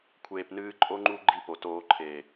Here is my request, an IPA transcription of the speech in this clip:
kʷʰ eː˨ p n ɨː˧ ǃʼ o˦ ŋ͡ǃ u˦ ɡ͡ǃ i˦˨ p o˨ t oː˧ ǃʰ e˨

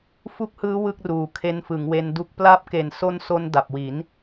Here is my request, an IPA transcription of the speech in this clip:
f u˦˥ k̚ h ɯː˦˥ w ɯ˥˩ k̚ r uː˨˩ kʰ e˧ n f ɯ˩˦ ŋ w e˧ n d u˦˥ k̚ p l a˦˥ p̚ k e˨˩ n s o˦˥ n s o˧ n d a˨˩ p̚ w i˩˦ n

